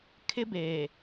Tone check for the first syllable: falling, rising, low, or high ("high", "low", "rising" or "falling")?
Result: high